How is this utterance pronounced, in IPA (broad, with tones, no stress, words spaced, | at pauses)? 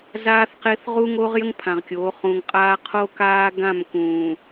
zaː˦θqe˦θ ʁu˦ŋoː˦ʁjə˦ŋ pʰã˨ʁkʲoː˨˦ χũ˨ŋqʼaː˦ qʰo˦kaː˦ ɡã˦˨m kũː˨